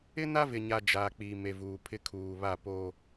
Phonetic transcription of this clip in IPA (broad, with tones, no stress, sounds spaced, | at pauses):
ɪ˦ n a˦ v ɪ˨ ɲ a˨ d͡ʒ aː˨ k͡p iː˨ m e˨ v uː˨ pʰ ɪ˦ kʰ uː˨ β a˦˨ p oː˦